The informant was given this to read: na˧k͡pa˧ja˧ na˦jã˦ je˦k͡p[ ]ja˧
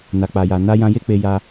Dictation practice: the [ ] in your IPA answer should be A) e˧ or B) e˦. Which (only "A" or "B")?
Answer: A